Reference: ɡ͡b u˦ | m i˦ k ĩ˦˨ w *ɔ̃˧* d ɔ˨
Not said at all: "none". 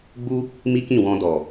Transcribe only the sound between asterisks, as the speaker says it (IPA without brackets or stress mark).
ɔ̃˧